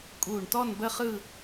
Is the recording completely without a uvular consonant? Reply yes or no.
no